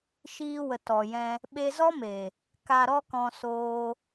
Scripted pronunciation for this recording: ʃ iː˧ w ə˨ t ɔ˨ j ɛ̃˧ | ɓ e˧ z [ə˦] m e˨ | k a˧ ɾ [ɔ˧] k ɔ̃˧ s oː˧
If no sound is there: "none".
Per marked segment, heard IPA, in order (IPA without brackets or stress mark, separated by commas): ɔ˦, ɔ˦